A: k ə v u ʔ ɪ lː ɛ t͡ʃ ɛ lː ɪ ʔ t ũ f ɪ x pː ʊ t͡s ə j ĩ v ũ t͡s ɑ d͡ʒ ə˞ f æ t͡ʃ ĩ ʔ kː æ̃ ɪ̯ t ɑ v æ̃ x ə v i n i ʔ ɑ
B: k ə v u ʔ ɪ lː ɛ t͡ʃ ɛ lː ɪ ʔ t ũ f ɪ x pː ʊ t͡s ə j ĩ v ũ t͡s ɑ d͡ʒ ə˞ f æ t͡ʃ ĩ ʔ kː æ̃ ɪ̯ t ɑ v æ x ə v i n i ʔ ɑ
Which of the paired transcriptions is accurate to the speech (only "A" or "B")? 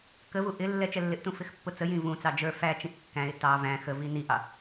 A